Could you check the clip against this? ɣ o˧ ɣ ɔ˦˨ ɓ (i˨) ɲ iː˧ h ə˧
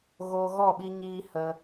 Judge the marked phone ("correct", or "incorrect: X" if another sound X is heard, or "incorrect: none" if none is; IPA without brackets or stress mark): incorrect: i˧